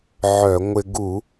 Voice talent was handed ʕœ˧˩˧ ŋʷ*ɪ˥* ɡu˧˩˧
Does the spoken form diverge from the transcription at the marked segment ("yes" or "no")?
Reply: yes